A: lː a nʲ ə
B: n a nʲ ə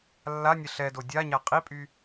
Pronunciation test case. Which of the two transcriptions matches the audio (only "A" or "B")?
A